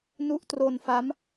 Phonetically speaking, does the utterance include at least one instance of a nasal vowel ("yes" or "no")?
no